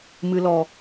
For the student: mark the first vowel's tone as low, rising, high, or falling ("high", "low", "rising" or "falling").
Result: low